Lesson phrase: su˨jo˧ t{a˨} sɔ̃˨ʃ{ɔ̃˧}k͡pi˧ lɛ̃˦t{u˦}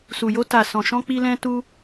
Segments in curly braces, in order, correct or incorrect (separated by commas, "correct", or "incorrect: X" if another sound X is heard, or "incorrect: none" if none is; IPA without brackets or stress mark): correct, correct, correct